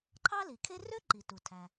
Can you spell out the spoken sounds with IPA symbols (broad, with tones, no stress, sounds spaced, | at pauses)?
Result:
ǃʰ ɑ˥ l i˩ kʰ e˥ r ø˥ ǃ i˩ t u˩ tʰ æ˩